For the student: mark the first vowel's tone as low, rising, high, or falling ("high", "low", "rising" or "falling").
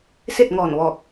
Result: falling